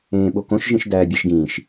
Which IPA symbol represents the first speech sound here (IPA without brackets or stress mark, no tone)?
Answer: ẽː